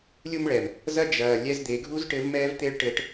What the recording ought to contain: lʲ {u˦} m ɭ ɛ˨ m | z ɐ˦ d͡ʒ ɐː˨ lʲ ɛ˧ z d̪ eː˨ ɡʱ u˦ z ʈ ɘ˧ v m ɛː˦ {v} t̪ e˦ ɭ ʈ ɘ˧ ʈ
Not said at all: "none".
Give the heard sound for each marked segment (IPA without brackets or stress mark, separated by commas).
u˦, v